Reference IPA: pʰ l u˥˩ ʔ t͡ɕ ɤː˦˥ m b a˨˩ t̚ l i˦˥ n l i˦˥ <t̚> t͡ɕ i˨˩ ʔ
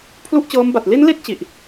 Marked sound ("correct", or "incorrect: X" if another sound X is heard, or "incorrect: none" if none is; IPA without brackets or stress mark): correct